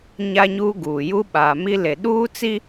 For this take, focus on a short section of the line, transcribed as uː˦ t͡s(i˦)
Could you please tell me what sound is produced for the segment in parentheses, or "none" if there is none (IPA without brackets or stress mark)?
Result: i˦